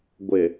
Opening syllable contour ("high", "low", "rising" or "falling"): low